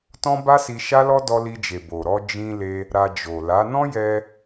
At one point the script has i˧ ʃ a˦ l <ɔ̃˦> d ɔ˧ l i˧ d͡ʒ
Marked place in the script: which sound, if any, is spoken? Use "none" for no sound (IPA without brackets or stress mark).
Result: ɔ˦